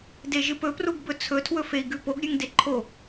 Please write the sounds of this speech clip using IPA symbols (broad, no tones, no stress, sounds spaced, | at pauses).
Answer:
d e ʒ ɨ p ɵ p r u ɡ b ɵ t͡sʰ ɵ tʰ w ɵ f e i̯ ɡ ʉ p o ɡ ɾʲ ʉ ŋ d e ǃʰ o